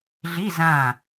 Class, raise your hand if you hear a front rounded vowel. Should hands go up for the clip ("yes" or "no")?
no